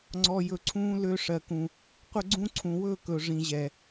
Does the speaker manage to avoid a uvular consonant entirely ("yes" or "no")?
no